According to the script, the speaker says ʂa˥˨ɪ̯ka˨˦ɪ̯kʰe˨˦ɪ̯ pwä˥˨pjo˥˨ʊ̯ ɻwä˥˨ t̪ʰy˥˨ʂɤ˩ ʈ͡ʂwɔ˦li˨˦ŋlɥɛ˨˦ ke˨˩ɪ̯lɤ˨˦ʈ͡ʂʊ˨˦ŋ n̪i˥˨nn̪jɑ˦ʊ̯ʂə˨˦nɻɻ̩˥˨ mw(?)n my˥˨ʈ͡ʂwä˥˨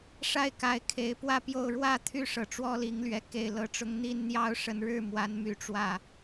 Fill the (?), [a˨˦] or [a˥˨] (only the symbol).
a˨˦